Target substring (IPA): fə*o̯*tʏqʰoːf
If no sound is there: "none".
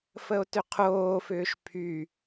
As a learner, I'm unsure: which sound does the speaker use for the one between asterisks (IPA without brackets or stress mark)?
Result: o̯